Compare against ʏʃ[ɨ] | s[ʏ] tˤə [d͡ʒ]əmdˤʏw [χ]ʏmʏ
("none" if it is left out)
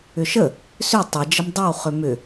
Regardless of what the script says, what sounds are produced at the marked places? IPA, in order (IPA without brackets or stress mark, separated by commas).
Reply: ə, ʏ, d͡ʒ, χ